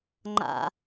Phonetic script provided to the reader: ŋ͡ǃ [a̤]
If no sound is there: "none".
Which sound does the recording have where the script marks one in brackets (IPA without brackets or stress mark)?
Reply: a̰